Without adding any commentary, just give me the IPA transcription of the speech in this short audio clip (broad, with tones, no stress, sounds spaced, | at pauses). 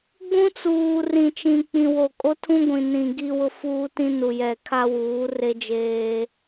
ɡ͡b ũ˦ t͡s uː˨ r ĩ˨ t͡ʃ ĩ˨ k͡p ĩ˨ w o˨ kʼ o˦ tʰ ũ˦ ɡʷ ĩ˨ n ĩ˨ ɡ i˦ w ʊ˦ f uː˦ t ĩ˦ n u˨ j ɛ˨ kʰ a˦ w uː˨˦ r e˦ d͡ʒ eː˦